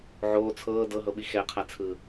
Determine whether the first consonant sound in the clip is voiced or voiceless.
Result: voiced